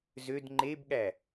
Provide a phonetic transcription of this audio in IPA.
zød ŋ͡ǃebɠæ

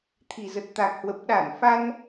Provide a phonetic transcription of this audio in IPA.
t̪ʰi˨˩zə˨˩t̚t̪a˨˩k̚hwə˨˩p̚ ɗa˧˩nfa˧n

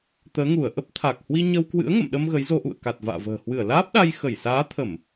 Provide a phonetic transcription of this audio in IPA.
t̪əː˨˦ŋu˧˩ə̯ ʔə˦˥p̚t̪ʰa˨˩k̚hwi˧ɲə˧w kwɨ̰˧˥ə̯ŋə̰˧˨mɗə˧m ɣə˨˦jzo˧ʔṵ˧˨ə̯ ka˨˩t̚va̰ː˧˨və̤ː˨˩ hwɨ˧˩ə̯laː˦˥p̚ɗa˧j xə˧˩jsaː˨˦t̪ʰə˧˩˨m

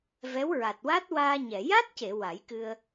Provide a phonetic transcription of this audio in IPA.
vɛ˧˥wɹa˨˩t̚wa˦˥t̚ waː˧ɲɛ˨˩˨ ja˦˥t̚ce˨˩˨ wa˨˩˦jkɨ˧ə̯

